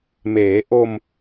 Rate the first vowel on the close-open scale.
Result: mid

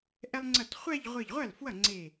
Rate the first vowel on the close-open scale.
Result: mid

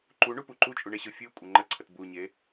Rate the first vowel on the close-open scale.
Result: close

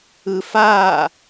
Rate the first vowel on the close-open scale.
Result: close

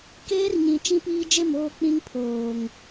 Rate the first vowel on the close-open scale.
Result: mid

